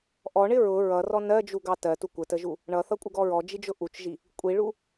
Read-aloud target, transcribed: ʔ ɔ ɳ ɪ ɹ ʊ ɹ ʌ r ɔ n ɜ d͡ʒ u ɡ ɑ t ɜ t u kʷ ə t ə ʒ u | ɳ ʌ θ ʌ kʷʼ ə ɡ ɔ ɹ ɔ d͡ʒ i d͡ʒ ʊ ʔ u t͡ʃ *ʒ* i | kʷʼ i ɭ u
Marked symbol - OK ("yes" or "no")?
yes